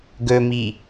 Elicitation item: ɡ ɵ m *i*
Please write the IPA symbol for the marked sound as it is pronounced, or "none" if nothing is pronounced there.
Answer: i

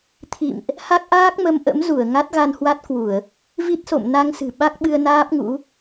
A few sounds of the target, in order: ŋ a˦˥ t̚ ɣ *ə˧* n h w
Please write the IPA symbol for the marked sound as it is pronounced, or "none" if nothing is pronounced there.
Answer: a˧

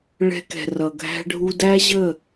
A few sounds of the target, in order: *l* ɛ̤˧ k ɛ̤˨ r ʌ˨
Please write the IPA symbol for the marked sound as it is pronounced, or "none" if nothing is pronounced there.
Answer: ɭ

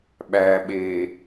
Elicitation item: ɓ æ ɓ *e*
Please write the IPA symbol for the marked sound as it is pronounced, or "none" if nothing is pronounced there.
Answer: eː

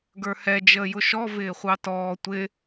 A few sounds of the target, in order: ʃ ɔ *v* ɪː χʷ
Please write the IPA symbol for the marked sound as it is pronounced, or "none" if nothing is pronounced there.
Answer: v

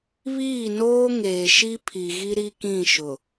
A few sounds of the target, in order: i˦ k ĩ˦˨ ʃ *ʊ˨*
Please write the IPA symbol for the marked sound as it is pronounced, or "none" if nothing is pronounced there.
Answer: ʊ˨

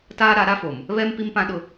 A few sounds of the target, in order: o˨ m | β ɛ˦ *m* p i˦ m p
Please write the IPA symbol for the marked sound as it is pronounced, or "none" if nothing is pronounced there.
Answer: m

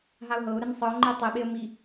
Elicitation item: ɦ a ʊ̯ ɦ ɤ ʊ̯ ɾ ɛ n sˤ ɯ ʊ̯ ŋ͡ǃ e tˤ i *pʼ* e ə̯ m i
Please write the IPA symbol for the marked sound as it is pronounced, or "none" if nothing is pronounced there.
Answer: ɓ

